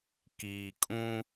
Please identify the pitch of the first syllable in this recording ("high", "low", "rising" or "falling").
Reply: low